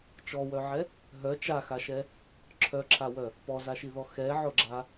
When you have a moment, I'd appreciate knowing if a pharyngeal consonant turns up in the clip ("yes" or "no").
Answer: yes